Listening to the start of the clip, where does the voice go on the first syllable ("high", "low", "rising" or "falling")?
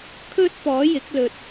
high